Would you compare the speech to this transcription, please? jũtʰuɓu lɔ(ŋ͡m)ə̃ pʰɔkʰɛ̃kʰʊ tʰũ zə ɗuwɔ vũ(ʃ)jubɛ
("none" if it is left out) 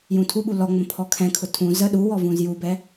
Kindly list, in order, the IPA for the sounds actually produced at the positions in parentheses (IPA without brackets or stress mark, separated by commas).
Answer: ŋ͡m, z